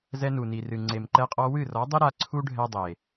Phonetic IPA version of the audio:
zɛ˧nu˨ni˨rɨ˨ ŋ͡ǀe˨mǃɛ˧qʼɔ˧ wɨ˦˨rɔ˨˦dˤi˦ ɾa˧ ǀʰu˦ɖʱɛ˧ dˤe˨

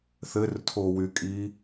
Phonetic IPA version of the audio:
θɘrtʰowykʼi

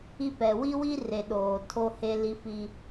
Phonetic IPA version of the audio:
i˦pɛ˨ wi˦wi˦re˨ ɗoː˨tʰo˦he˦ li˦fi˦

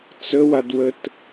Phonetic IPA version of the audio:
t͡səwadwət

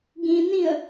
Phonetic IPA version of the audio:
ɡĩnĩə̯

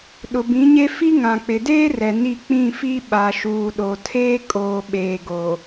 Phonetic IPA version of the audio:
ɗʊ˨bĩ˨˦ɲe˦ fi˦ŋã˨ k͡pɪ˨deː˦rɛ˨ ni˦˨ k͡pĩ˦˨fi˦ ɓa˨ʃuː˨ɗo˨tʰeː˦ kʼoː˨ɓeː˨ɡo˨

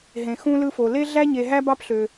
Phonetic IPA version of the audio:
ɦẽ˩xũ˦lɯ˦fo˩ le˥ɮæ˥ ɲe˨ɦæ˥ bɑ˦pɬø˩

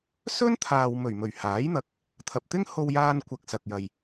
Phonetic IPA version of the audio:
sɵ˥nt̪ʰaː˨wmɵ˨˩ɥmɵ˨˩ɥ haː˨˥jn̪ɐ˧k̚ | t̪ʰɐ˨p̚t̪ɪ˥ŋho˧wjaː˧n kʷɐ˨k̚sɐ˨k̚jɐ˨j

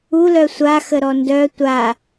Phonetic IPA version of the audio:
ulœ sʷaxəɾɔ ndœ tʷa

